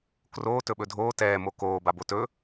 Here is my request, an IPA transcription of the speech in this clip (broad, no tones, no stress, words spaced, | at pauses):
kroː tɵɓɵdʱoː tɛːmo koː babotɵ